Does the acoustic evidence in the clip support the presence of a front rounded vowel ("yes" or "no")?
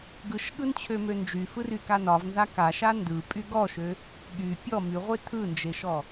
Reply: yes